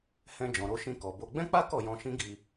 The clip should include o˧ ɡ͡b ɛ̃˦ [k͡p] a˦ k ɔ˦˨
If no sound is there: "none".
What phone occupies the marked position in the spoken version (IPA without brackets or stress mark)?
k͡p